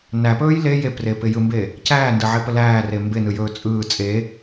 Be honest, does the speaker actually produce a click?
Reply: no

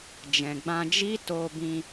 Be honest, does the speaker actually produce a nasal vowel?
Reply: yes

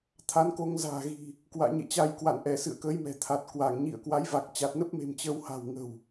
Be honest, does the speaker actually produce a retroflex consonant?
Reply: no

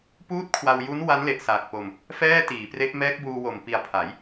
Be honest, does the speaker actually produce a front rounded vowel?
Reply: no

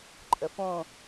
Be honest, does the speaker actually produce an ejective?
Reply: yes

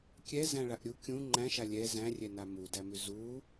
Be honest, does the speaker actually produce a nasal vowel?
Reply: yes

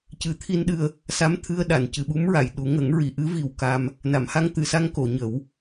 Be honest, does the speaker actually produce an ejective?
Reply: no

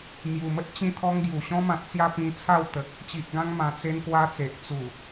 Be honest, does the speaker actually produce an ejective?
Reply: no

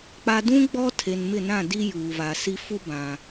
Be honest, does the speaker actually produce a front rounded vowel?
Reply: no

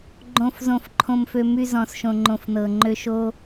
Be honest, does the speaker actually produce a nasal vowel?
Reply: yes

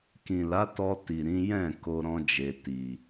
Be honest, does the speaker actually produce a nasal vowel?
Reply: yes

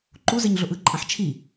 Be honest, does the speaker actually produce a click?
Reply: yes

